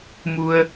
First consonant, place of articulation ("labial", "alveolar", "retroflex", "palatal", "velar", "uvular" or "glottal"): labial